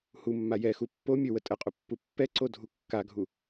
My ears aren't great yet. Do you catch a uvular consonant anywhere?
yes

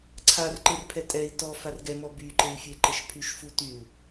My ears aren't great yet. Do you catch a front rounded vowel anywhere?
yes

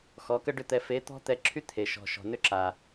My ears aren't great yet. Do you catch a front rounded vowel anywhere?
yes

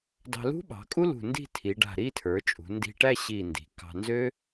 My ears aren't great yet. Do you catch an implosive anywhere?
yes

